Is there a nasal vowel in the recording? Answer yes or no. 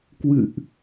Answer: no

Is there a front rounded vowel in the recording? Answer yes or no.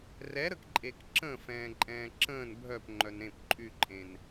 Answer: yes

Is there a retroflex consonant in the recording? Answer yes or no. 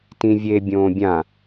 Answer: no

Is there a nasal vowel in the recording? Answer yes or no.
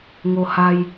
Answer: no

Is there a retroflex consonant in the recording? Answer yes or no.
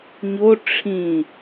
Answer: yes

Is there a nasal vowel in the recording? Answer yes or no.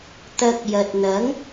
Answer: no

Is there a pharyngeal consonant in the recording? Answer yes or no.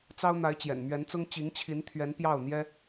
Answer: no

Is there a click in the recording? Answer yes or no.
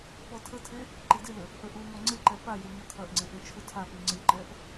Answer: yes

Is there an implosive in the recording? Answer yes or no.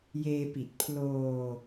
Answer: no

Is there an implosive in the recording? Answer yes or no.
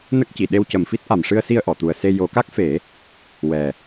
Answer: yes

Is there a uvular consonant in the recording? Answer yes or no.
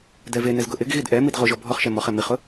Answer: yes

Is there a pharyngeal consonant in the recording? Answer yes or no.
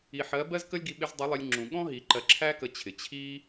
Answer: yes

